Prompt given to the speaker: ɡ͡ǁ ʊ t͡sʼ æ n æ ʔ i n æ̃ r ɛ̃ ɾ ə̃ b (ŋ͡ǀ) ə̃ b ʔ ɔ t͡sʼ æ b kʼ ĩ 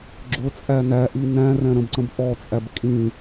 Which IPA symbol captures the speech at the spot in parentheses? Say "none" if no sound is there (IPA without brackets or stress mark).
ǀ